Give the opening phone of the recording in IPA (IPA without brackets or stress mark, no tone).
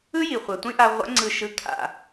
ɯ